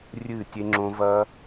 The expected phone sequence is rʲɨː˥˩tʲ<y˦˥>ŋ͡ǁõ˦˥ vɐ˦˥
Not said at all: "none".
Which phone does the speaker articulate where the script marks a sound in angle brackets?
e˦˥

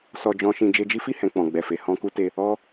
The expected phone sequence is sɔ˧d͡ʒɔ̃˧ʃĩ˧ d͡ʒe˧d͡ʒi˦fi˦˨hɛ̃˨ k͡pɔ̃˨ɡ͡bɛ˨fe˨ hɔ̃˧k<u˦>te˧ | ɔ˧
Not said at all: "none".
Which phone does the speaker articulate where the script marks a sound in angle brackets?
u˦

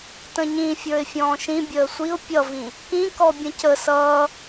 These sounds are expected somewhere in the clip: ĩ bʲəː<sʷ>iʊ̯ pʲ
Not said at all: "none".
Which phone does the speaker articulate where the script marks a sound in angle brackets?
sʷ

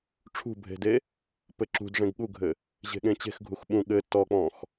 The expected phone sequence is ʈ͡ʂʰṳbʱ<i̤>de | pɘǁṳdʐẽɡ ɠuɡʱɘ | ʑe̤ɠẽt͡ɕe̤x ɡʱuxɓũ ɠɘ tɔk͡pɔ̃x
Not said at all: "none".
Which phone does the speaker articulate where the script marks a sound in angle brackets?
e̤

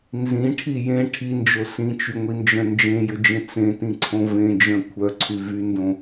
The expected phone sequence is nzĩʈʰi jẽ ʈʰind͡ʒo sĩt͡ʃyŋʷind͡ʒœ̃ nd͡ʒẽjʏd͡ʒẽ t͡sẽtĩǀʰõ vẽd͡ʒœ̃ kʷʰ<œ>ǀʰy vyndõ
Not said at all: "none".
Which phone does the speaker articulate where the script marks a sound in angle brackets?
œ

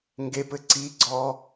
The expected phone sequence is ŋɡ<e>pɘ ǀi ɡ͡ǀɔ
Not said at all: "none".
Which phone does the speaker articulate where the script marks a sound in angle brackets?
e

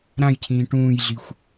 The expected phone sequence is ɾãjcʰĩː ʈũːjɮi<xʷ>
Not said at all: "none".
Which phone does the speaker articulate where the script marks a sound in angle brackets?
xʷ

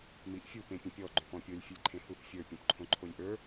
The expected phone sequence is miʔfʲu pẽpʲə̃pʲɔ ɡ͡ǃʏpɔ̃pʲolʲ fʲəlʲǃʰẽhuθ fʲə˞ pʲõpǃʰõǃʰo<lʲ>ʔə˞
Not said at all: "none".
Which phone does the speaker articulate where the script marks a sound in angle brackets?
lʲ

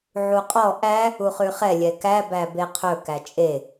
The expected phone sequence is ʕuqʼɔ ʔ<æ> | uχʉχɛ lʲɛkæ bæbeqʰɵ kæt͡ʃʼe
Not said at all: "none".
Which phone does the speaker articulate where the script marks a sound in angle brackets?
æ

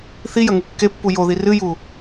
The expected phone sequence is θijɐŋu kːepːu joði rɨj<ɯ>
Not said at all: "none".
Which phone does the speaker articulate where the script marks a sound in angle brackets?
u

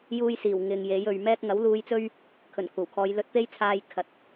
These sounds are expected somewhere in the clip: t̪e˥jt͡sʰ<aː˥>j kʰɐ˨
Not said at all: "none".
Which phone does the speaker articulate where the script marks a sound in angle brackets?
aː˧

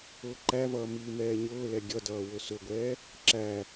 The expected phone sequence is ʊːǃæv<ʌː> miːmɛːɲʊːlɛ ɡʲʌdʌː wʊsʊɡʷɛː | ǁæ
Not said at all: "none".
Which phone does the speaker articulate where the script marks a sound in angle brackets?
ʌː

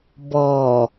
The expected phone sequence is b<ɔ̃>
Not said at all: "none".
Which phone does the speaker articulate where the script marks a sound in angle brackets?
ɔ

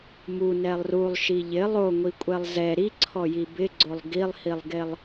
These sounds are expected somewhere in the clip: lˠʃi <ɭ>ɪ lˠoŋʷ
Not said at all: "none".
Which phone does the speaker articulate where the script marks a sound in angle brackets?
ʎ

